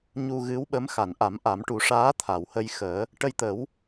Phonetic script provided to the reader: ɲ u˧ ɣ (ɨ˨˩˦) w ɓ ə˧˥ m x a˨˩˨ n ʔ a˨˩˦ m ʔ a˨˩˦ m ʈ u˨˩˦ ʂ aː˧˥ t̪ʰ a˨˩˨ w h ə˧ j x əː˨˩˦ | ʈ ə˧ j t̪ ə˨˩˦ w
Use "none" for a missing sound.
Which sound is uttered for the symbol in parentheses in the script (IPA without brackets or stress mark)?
ɨ˧˥